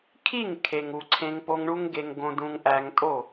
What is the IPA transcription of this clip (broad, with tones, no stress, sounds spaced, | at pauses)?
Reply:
kʰ i˦˨ ŋ kʰ e˨ ŋ u˨ ǀʰ ẽ˧ ŋ p o˧ ŋ ɳ u˦ ŋ ɡ e˧ ŋ ɡ õ˧ d ũ˧ ŋ ʔ æ˧ ŋ tʼ o˦˨